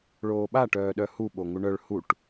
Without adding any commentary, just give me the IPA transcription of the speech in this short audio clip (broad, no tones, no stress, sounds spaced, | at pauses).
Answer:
ɭ oː ɓ a ʈ œː ɗ œ h u ɓ o ŋ u ɳ œ ɭ h u ʈ